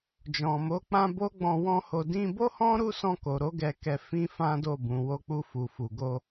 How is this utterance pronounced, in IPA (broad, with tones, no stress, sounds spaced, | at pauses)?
d͡ʒ ɔ̃˨ m o˨˦ k͡p ã˧ b o˦ ɡ͡b ɔ̃˧ w ɔ̃˦ h o˧ d ĩ˧ b o˦ h ɔ̃˦ ɾ u˦ s ɔ̃˧ k o˨ ɾ o˨˦ ɡ ɛ˧ k ɛ˧ f ĩ˧ f ã˦ d o˦˨ b ũ˨ w o˧ k͡p u˧ f u˨ f u˨ ɡ o˧